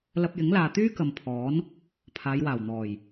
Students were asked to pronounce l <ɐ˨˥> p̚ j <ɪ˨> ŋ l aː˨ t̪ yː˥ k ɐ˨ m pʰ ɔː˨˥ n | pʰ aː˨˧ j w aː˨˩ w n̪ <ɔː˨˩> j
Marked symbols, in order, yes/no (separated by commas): no, no, yes